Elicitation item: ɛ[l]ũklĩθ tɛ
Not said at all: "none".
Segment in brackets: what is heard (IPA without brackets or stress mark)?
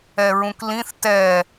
ɹ